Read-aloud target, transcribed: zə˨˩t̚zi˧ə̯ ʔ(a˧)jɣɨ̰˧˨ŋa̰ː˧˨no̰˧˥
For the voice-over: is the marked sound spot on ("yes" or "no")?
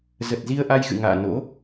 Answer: yes